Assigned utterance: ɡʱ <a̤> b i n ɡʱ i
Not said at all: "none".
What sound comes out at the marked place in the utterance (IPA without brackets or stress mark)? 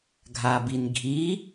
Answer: a